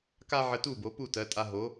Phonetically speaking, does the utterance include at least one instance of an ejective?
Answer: yes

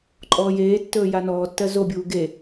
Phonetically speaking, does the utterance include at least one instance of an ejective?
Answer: yes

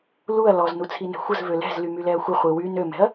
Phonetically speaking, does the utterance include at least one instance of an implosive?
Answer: no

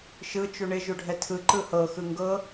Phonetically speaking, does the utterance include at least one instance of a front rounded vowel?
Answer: no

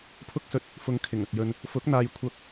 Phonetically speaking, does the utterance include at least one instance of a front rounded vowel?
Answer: no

